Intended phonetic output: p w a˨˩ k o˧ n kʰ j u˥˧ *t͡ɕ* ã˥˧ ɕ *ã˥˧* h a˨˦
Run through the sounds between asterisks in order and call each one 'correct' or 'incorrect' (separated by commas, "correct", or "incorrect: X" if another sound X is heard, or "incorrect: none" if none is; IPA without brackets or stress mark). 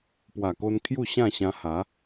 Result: incorrect: ɕ, incorrect: ã˧